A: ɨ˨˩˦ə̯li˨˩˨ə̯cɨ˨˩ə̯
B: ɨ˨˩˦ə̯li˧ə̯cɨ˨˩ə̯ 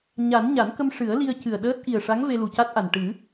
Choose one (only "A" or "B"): B